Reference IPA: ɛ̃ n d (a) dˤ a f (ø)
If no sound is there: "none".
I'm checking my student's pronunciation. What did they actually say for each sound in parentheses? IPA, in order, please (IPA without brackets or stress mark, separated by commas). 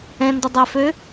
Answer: ʌ, ø